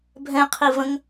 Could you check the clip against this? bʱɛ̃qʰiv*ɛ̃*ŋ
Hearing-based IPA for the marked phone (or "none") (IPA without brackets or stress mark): ə̃